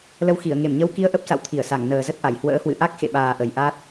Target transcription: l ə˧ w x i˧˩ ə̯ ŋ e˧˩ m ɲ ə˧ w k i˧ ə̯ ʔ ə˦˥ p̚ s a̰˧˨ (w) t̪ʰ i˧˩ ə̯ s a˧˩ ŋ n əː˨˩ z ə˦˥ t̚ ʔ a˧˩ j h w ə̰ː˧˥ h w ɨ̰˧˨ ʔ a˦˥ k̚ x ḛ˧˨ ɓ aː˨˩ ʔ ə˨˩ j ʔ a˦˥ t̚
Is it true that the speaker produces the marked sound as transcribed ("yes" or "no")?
yes